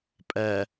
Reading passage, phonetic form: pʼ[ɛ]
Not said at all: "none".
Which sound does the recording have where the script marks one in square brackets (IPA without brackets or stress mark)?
ɛ